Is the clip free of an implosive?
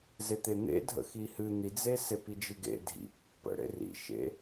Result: yes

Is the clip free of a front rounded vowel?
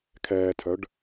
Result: no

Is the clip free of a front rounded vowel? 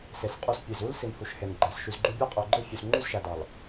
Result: no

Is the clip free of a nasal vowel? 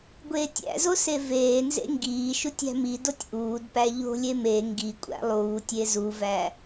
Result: yes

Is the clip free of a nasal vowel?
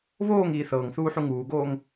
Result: yes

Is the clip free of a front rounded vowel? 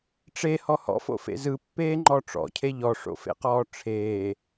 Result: yes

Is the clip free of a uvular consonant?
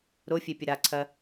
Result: yes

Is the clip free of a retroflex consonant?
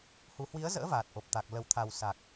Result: yes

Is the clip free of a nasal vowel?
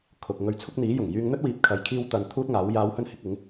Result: yes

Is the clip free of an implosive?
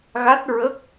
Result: yes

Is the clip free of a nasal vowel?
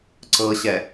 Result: yes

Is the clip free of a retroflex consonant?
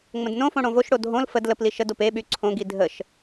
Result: no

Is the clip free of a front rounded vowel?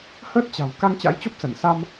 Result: yes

